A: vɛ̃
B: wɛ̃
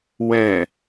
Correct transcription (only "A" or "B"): B